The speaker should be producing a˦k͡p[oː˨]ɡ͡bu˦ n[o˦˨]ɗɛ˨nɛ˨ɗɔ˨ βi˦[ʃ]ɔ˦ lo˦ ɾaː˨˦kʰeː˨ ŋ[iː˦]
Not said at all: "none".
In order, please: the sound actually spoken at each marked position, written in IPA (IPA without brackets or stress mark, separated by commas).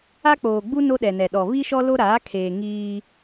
oː˨, o˦, ʃ, iː˦